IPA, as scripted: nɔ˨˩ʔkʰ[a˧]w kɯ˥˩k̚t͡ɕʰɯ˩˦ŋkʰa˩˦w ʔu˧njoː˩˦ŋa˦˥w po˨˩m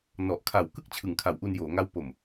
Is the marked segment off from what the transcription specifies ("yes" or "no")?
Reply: yes